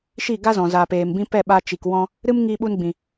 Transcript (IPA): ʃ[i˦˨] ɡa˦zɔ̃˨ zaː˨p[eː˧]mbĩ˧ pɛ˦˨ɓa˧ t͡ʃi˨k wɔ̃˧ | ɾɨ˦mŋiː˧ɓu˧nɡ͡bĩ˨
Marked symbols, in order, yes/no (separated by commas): yes, no